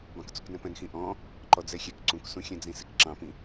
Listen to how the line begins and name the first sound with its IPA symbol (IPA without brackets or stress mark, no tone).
b